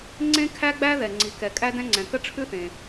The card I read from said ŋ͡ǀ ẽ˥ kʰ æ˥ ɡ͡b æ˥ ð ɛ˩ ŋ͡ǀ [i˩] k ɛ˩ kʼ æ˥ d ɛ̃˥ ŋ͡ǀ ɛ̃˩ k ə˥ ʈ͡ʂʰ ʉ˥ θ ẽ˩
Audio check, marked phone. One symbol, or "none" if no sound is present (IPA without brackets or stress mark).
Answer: i˩